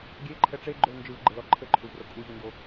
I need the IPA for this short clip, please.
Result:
ɡʲ e ǃʰ ɛ ʈ͡ʂ e ɡ͡ǃ o l n d͡ʒ ɯ v ɡ͡ǃ ɘ l ɔ ǃʰ ɘ ǃʰ u v r o kʼ u ʑ u n d o

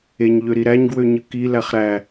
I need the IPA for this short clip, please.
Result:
e ɲ ʎ ø ɾ i ɾ æ ɲ ɡ w ø ɲ ɯ k i l æ χ ɾ æ

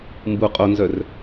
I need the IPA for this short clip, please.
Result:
m b u qʼ o n z œ r

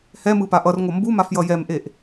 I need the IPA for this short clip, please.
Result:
h ɛ m ɯ p a ʔ ʌ r ŋʷ ʌ m b u m a f j ʌ j ɛ m ʔ e ʔ

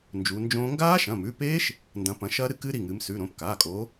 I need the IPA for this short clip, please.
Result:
n d͡ʒ u˨˦ n d͡ʒ õː˦˥ ŋ ɡ aː˦˥ ʃ ɐ̃˩˧˩ m ʉ˩˧˩ p eː˦˥ ʃ | n d ɐ̃˨˦ p ɐ̃˨˦ ʃ ɐː˦˥ ɾ ɨ˦˥ k ɨː˦˥ ɾ i˩˧˩ ŋ ɨː˨˦ m s ʉ˩˧˩ ɾ õ˩˧˩ p k aː˩˧˩ kʼ o˨˦

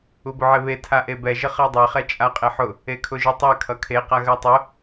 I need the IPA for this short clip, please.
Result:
u b ʊ ʕ e β e tʰ a ʔ e b ɛ ʒ ə χ ɜ dˤ e χ ɛ t͡ʃʼ a qʼ e ħ ʊ | e kʰ ʊ ʒ ʊ tˤ ɛ kʰ ʌ kʰ e q a ɣ ɜ tˤ ʊ

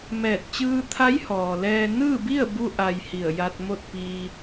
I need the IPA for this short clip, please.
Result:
m ɛː˧˩ t̚ t͡ɕ ɯː˧ t̪ʰ a˧˥ j h ɔː˩ l ɛː˧ n ɯː˥˨ b i˥˨ ə̯ b u˧ ʔ a˩ j h i˧˩ ə̯ j a˧ t̚ m o˥˨ t̚ p iː˧

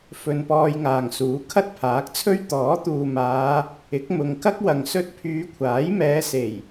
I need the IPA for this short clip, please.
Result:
f ɵ˧ n p ɔː˧ j ŋ aː˨ ŋ s uː˨˥ kʰ ɐ˥ t̚ pʰ aː˨˥ k̚ t͡sʰ ɵ˥ ɥ t̪ ɔː˨˥ t̪ uː˨ m aː˨˧ | ɪ˨˥ k̚ m ʊ˨˧ ŋ k ɐ˥ k̚ w ɐ˨ ŋ s ɵ˧ t̚ pʰ yː˨˧ kʷʰ aː˨˥ j m ɛː˨˧ s e˨˩ j

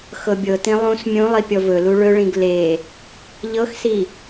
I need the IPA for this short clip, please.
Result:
x ɤ bʲ ɤ t ĩ lˠ ũ s mʲ ũ lˠ i pʲ ɔ v ɵ l u ɭ ɵ ɭ ĩ ɡ l e | ʎ ɤ x s i

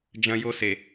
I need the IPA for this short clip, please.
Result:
d͡ʒ ɐ̃˦ j o˦ s e˨

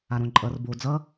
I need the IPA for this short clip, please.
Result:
a ɾ õ ǃʼ ʌ r b o d͡z ʌ

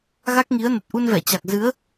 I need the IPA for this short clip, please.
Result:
ɣ a˦˥ k̚ ŋ i˨˦ ə̯ n ə˨˩ t̚ ʔ u˧ n v ɛ˧˩ t͡ɕ a˨˩ k̚ z ɨ˨˦ ə̯

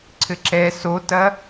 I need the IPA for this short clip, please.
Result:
ǀʰ ɘ ǁ ɛ s o t ɐ

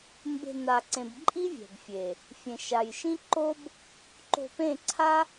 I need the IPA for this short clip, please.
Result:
m b e̤˧ n a˨ ǀ ẽ˨ b ǃʼ i˦ vʲ ɛ̤˨ b fʲ e˨ | fʲ ẽ˨ ʃ a˨ j ʃ ĩ˦ ǃ o˦ b | ǃ o̤˧ p ẽ˦˨ ǀʰ a˦

